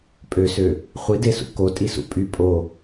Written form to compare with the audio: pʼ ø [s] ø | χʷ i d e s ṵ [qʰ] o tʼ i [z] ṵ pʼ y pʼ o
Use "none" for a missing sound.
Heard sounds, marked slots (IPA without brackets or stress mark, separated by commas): s, k, s